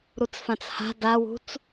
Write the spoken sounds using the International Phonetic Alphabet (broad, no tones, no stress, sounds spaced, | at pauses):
ɾ u t͡s f ã t͡s h a̤ d a w ṳ t͡s